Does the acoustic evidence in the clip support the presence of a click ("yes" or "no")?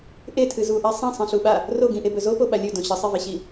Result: no